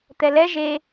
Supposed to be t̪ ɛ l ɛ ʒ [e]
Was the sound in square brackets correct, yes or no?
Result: yes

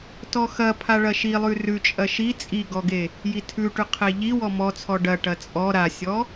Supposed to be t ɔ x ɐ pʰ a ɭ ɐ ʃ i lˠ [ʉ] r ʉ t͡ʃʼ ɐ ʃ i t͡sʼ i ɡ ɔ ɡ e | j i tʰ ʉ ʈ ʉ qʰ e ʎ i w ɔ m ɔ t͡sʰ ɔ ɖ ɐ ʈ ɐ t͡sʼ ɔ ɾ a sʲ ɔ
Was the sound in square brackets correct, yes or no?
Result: yes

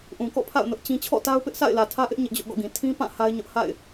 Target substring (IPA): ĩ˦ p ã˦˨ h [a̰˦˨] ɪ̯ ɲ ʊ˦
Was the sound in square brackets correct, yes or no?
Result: no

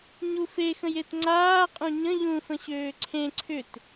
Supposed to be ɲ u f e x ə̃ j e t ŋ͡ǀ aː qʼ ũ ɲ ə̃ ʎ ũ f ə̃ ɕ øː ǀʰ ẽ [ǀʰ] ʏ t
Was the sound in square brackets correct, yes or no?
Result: yes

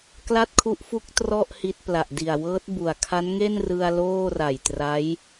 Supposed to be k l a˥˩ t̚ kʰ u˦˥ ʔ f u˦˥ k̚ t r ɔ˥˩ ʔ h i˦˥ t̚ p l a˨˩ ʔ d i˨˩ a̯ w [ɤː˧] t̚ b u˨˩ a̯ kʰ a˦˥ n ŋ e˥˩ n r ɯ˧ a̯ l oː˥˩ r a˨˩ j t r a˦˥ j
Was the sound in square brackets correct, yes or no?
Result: no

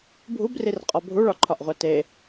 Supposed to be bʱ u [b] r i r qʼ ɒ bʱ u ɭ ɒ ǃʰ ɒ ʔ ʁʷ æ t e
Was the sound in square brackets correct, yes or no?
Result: yes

